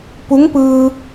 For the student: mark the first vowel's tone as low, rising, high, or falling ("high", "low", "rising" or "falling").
rising